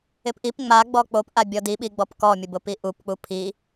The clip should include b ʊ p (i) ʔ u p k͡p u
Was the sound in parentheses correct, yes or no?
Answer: yes